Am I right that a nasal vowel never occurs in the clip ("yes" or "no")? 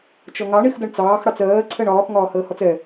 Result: yes